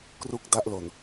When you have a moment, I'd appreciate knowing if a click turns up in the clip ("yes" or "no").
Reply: no